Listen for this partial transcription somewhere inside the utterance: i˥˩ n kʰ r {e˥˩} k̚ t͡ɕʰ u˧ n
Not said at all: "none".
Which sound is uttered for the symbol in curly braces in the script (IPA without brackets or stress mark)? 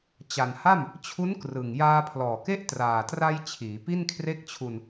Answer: e˥˩